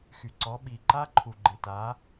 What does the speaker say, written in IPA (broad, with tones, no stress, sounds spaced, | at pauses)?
x y˨ ǀ ɔ˨˦ ɓ i˨ ǃ a˦ ǃʰ u˨ ɡ͡ǃ ɪ˨ t a˨˦